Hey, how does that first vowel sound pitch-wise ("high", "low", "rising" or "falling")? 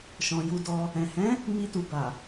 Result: low